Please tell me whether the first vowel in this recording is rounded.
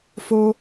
yes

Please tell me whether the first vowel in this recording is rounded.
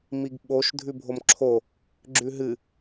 no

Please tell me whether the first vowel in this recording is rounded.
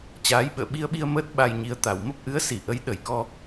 no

